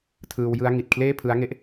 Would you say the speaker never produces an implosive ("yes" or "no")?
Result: yes